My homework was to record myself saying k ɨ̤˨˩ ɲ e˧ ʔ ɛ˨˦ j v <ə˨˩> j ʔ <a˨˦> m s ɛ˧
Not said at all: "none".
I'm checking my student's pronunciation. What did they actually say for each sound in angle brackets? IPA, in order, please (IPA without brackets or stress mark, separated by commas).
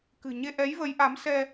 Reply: ə˨˦, a˨˦